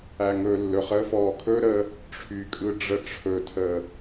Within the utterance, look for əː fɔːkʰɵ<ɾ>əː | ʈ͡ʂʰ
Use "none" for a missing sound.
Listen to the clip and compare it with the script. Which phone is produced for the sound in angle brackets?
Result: ɾ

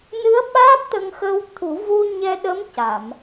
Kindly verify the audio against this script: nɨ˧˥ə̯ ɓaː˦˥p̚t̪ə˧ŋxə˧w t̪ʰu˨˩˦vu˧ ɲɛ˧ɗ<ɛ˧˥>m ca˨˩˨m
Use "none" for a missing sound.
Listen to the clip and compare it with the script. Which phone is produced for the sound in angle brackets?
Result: ə˧˥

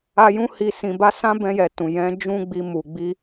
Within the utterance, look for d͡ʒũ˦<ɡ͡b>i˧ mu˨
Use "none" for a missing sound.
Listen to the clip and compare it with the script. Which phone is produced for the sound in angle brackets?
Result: ɡ͡b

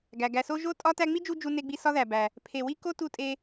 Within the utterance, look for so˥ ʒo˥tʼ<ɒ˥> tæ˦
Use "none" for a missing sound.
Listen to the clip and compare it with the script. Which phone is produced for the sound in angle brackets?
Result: ɒ˥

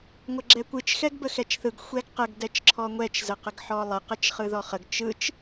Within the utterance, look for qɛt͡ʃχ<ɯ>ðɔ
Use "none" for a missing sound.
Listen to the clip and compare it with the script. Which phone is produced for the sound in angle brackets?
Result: ɯ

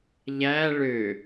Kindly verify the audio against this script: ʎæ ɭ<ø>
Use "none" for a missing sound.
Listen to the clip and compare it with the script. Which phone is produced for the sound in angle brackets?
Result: ø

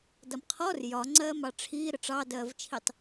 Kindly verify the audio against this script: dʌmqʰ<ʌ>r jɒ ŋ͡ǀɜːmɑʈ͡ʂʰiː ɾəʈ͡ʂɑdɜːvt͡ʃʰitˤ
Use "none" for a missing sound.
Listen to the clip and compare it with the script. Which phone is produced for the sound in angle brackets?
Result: ɔ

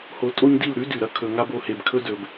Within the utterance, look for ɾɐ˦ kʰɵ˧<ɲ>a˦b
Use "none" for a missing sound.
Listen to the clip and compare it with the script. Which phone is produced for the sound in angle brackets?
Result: ŋ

